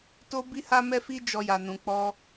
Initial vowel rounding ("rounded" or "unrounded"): rounded